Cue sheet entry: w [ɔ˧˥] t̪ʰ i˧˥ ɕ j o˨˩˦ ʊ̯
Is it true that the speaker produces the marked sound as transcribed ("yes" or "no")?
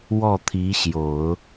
no